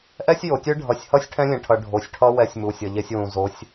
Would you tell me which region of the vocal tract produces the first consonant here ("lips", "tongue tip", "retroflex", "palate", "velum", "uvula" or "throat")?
throat